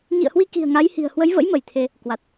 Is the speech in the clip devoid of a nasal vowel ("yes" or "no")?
yes